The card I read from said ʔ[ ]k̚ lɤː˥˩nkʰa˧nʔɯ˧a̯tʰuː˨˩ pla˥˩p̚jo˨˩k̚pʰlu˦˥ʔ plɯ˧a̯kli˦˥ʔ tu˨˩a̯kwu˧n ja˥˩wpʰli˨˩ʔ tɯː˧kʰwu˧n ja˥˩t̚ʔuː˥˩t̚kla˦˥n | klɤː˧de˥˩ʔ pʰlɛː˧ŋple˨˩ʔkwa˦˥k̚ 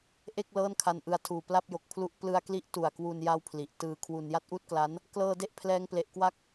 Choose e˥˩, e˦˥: e˥˩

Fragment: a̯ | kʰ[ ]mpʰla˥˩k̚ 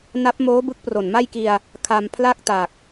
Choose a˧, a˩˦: a˧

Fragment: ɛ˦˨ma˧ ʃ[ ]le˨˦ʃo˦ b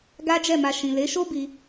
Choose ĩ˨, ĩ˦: ĩ˨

